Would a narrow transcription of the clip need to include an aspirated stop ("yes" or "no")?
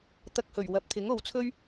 yes